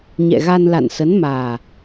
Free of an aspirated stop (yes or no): yes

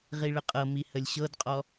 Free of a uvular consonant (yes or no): no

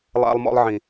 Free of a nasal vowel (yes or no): no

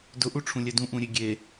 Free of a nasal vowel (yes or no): no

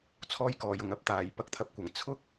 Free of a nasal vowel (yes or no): yes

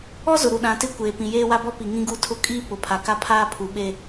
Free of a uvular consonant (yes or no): yes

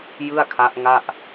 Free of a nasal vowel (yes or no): yes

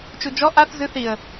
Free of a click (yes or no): yes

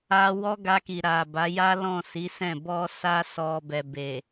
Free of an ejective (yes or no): yes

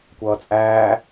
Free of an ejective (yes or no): no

